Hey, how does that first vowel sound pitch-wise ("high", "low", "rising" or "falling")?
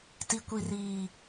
low